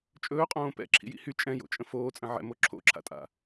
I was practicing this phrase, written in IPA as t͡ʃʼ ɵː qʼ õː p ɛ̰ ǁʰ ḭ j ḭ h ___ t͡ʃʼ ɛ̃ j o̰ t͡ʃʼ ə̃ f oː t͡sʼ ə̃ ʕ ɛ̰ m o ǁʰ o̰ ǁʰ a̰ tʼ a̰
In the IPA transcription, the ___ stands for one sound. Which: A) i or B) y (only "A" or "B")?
B